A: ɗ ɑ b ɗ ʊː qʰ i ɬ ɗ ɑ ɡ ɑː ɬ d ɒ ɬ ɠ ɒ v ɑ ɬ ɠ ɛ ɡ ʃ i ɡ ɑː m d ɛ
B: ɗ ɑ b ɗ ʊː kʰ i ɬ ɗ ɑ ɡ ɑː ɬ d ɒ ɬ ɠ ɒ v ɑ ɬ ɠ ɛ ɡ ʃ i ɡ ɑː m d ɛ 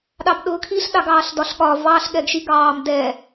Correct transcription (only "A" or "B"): B